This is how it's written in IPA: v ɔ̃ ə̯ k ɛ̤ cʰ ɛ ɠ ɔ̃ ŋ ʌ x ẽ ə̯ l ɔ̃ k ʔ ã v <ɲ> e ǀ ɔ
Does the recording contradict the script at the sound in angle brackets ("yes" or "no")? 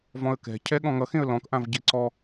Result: yes